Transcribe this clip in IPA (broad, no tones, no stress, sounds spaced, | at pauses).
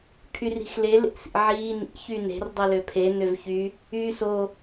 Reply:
kʰ y r i̤ x l e l ḛ s ḭ ʕ iː n ḭ ç y n e̤ r dˤ ɯ l ø pʰ e n ø v ç y | yː s o